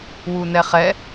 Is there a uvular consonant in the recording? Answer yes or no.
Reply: yes